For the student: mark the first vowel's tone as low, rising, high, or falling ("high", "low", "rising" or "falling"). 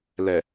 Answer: low